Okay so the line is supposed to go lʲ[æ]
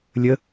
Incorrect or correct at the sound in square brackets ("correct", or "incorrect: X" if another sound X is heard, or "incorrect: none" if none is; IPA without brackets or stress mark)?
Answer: incorrect: ə